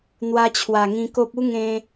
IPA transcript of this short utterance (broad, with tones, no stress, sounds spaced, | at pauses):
n̪ w a˧ t͡ɕʰ w a˨˩ ŋ ĩ˧ k o˦ p̚ u˦ ŋ ẽ˧